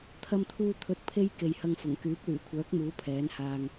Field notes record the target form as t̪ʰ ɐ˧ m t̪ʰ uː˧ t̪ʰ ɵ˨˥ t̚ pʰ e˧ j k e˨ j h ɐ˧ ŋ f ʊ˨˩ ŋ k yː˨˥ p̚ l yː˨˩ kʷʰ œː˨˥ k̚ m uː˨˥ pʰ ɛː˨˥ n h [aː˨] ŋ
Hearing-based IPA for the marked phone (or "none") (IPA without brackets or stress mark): aː˧